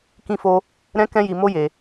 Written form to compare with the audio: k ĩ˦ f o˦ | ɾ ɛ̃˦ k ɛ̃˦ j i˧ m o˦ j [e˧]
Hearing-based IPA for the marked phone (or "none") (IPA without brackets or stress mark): e˧